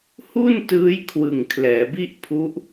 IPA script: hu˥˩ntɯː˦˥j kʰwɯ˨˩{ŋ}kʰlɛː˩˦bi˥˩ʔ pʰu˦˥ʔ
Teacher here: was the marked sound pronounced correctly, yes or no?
yes